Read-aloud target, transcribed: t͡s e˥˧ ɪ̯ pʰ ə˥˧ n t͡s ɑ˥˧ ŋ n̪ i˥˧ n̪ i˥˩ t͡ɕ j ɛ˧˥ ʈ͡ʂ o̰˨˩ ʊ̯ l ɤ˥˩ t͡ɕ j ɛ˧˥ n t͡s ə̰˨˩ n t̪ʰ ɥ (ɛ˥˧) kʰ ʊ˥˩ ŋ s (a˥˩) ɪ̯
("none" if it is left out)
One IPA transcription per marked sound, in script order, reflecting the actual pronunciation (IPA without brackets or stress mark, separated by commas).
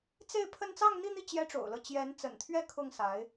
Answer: ɛ˥˧, a˧˥